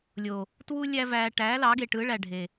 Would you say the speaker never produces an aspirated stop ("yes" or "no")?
yes